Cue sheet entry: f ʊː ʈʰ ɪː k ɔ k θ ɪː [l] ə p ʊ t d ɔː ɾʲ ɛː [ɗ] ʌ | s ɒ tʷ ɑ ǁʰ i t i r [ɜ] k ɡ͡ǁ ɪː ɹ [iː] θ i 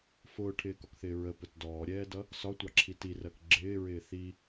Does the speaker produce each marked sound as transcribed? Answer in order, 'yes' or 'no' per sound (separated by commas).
no, no, yes, no